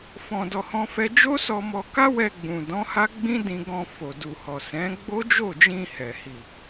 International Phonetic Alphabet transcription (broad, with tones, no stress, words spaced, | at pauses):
fɔ̃˧dɔ˧ hɔ̃˦fɛ˦ d͡ʒo˦sɔ˧mɔ˧ka˦ wɛ˧ɡ͡bũ˨dɔ̃˨˦ ha˦ɡ͡bĩ˦dĩ˧ ɡɔ̃˧fo˨ du˨hɔ˨ sɛ̃˨˦ ɡ͡bo˦ d͡ʒo˦˨d͡ʒĩ˧ hɛ˨hi˨